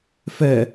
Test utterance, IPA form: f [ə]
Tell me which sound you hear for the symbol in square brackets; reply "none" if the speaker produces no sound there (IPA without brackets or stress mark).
ɛ